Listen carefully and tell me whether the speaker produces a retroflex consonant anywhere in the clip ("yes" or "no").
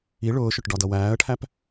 yes